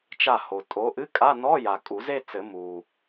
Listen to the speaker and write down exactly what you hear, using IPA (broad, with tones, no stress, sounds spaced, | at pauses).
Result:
t͡ʃ a˧˩ h o˩ tʼ o˨˦ ʔ ɨ˧˥˧ kʼ a˧˥˧ n ɔ˧˥˧ j a˩ kʼ u˨˩˦ z e˥˧ t͡s ɘ˨˩˦ m u˩